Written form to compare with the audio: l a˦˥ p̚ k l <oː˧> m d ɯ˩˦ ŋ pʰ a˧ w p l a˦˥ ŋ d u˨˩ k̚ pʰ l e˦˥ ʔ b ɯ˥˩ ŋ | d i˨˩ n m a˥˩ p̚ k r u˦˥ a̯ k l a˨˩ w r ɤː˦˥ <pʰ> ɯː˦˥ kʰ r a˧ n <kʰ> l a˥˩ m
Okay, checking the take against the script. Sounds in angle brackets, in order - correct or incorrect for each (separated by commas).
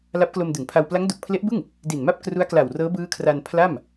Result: incorrect, incorrect, incorrect